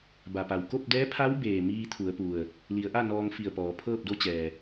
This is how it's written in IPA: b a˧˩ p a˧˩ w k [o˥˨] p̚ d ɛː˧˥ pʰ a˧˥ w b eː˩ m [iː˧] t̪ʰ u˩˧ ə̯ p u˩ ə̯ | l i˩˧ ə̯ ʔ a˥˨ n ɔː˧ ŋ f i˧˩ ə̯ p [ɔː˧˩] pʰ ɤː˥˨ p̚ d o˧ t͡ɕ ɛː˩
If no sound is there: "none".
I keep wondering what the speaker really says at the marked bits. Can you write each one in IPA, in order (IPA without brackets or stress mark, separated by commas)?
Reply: o˥˨, iː˧, ɔː˩˧